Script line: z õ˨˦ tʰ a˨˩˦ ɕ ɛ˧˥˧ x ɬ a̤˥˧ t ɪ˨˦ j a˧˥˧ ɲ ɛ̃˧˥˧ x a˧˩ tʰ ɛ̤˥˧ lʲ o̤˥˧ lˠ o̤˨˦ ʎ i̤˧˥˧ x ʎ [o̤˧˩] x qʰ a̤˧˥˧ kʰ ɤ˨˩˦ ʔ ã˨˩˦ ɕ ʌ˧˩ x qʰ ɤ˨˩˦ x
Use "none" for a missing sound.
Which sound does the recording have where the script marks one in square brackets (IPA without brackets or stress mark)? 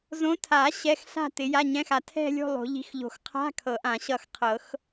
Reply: o̤˧˩